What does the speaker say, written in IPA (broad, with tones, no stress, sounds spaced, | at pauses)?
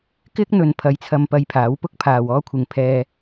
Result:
k ɪ˥ k̚ n̪ ɵ˨ n pʰ ɐ˨˥ j t͡sʰ ɐ˧ m p ɐ˧ j pʰ aː˨˥ w p ʊ˥ k̚ pʰ aː˨ w ɔː˥ kʷʰ ɪ˨ ŋ pʰ ɛː˧